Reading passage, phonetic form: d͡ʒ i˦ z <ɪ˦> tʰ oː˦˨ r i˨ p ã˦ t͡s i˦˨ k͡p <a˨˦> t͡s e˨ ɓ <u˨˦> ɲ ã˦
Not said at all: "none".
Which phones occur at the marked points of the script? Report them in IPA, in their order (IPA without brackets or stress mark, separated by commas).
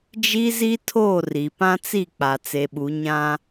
i˦, a˨, u˨˦